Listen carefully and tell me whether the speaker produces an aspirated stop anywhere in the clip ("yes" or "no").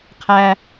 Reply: yes